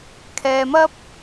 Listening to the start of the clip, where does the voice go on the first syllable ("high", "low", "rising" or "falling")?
low